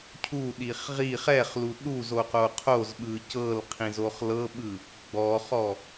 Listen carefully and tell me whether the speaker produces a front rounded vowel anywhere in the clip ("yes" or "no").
no